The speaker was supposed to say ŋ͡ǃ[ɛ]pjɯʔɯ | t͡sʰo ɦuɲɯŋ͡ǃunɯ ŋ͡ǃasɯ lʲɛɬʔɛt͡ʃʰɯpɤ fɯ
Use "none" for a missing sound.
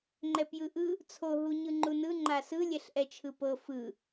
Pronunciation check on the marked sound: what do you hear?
ɛ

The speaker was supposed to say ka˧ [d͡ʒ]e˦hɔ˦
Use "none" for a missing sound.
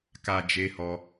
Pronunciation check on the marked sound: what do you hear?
d͡ʒ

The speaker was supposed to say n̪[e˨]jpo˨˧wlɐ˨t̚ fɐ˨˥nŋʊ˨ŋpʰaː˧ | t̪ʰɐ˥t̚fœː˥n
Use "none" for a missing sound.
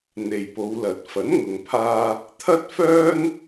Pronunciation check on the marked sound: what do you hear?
e˨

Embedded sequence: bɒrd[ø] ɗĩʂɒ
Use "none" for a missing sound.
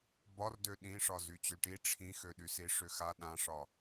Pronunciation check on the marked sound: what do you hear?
ø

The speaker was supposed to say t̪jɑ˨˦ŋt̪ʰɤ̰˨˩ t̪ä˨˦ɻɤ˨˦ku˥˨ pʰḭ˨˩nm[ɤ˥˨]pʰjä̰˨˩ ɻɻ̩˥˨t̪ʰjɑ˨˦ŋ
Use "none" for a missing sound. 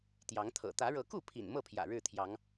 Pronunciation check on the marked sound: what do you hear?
ɤ˥˨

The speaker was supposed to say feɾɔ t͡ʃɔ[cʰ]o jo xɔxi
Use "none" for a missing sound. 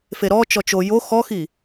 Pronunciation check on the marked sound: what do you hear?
t͡ʃ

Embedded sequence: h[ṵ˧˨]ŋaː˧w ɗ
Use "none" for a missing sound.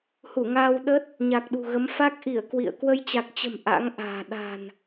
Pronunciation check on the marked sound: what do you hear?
u˧˩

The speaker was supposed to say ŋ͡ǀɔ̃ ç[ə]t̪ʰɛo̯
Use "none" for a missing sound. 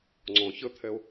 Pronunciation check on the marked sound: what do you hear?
ə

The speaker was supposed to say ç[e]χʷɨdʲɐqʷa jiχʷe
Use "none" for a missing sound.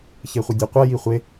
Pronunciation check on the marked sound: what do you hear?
e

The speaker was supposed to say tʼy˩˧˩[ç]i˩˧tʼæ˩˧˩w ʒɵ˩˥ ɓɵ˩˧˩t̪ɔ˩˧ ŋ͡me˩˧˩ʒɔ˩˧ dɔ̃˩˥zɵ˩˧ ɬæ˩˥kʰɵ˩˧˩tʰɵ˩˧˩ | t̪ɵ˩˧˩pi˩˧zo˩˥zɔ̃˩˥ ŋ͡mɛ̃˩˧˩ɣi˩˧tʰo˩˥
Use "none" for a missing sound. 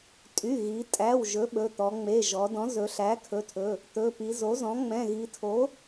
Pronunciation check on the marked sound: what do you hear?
ɣ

